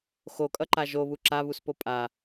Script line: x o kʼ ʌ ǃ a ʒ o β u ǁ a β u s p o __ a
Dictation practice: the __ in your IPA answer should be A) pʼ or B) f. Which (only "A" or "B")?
A